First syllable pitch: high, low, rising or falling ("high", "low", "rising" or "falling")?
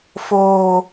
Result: low